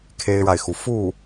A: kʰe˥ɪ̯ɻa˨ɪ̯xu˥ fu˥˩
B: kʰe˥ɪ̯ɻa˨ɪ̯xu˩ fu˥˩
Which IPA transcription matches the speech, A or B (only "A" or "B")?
B